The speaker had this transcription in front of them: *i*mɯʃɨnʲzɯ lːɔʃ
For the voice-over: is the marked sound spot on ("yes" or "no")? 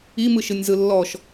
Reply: yes